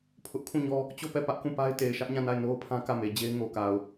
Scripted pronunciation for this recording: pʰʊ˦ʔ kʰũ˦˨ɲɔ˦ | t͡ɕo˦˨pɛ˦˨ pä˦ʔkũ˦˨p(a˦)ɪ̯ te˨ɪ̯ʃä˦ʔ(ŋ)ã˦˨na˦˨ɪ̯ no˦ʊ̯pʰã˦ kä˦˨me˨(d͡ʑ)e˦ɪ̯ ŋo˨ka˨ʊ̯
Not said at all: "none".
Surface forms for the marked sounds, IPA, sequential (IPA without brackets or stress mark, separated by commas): a˦, ɲ, d͡ʑ